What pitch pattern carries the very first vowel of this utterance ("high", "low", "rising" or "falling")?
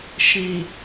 low